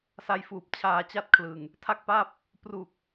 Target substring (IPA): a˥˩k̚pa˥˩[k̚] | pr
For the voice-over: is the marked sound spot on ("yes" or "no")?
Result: no